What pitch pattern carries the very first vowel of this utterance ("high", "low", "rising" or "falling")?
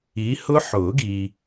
rising